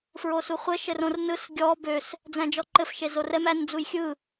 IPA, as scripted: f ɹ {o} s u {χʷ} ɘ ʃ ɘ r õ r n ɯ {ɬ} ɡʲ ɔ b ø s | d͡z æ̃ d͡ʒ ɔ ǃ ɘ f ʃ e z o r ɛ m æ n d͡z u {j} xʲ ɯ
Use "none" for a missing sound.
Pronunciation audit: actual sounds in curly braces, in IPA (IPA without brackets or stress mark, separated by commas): o, χʷ, s, j